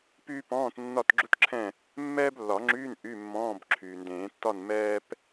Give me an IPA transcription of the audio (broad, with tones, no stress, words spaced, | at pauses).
pyː˥pɔ̃ː˧˥˧t nːɒ˥˨tɡ͡ǁu˥tǁʰɛ̃˥˨ | mːɛː˥blːɒ˨˩˦ŋ͡ǁyː˧˥˧n ʔy˧˥˧mːɔ̃ː˧˥˧b ǁʰyː˩ndẽː˨˩˦tːɒ˥˨n mɛː˥p